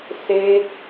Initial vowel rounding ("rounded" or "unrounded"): unrounded